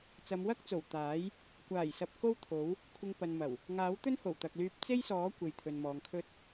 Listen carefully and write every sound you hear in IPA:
t͡s ɐ˨˧ m w ɐ˥ k̚ t͡s o˨˩ w t̪ aː˨˥ j | kʷ aː˨˩ j s ɐ˨ p̚ k o˥ w t̪ʰ o˨˥ w | kʷʰ ɪ˧ ŋ p ɐ˨ n m ɐ˨˩ w | ŋ aː˨˥ w t̪ ɵ˥ n h o˨˩ w t̪ ɐ˨ k̚ l yː˧ p̚ t͡s e˥ j s ɔː˨˥ kʷ e˨ j t̪ʰ ɵ˨ n m ɔː˨ ŋ kʰ ɵ˥ t̚

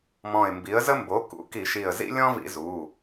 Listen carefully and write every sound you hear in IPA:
m ɔ̃˧˩ ɪ̯ m b i˩˥ ə̯ z ə˦ m b o˩˥ k ṵ˩˥ k i˧˩˧ ʃ i˧˩ ə̯ z ḭ˦ lʲ ɔ̃˦ v ḭ˧˩˧ z u˩˧˩

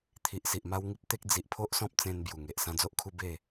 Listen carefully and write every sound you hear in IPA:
t̪ʰ i˨ ʔ s i˨ ʔ m a˦ w ŋ i˦ p̚ t̪ e˦ k̚ d͡z i˨ ʔ pʰ o˦ ʔ s ɔ̃˦ p̚ t͡s ẽ˧ n b j u˨˩ ŋ e˨ ʔ s ã˧ d͡z o˦ ʔ kʰ u˧ b e˥˧

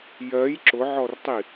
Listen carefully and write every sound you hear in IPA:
j ɜ j ǁ ʊ ʕ ɔ r tˤ i

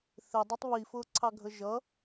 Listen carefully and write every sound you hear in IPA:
θ ɪ dˤ ɛ tˤ β i f ʊː ǀʰ ɑ ɡʱ ə ʒ ʌ

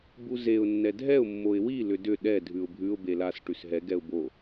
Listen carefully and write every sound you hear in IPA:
b u z e ʊ̯ nː ɛ dʱ ɛ ʊ̯ mː o ɪ̯ w i l ʏ d ʏ ɗ ɛ dʱ ʉ ʊ̯ bʱ ʉ ʊ̯ b e l a s ʈ ʉ s ɦ ɛ ɡ ɛ ʊ̯ b o

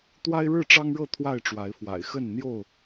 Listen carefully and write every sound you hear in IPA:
t̪ w a˦ ɪ̯ ɻ ɻ̩˥˨ ʈ͡ʂ ɑ˦ ŋ ɻ ɤ˥˨ t̪ʰ w a˥˨ ɪ̯ ʈ͡ʂ w a˨˦ ɪ̯ f w a̰˨˩ ɪ̯ x ə˥˨ n n̪ j o˥˨ ʊ̯

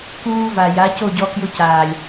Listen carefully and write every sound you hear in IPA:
k uː˧ v a˨ j a˨˦ c o˦˨ ɟ ɔ˧ k j ʊ˧ c aː˨ lʲ

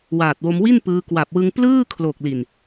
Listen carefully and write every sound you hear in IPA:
w aː˨˩ t̚ w o˧ m w i˥˩ n p ɯː˧ k w a˨˩ p̚ w ɯ˧ ŋ p l ɯː˥˩ kʰ l o˨˩ k̚ l i˨˩ n

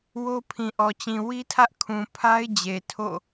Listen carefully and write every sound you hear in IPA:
w o˦ pʰ ĩ˨ ʔ ɔ˨ t͡ɕ ĩ˨ w i˦ tʰ ä˦ ʔ kʰ ũ˨ pʰ a˦ ɪ̯ d͡ʑ e˨ tʰ o̰˦˨

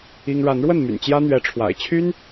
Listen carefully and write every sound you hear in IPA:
i˦ ŋ ɻ a˨˦ n ɻ w ə˥˨ n m y̰˨˩ n t͡ɕ j ä˦ n̪ ɥ ɛ˨˦ ʈ͡ʂʰ w a̰˨˩ ɪ̯ t͡ɕʰ y˦ n

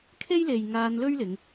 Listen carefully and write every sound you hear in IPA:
kʰ e˥ j l e˨ j ŋ aː˧ n l ɵ˥ ɥ l ɪ˨˧ ŋ

